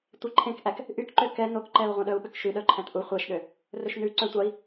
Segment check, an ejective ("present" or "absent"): absent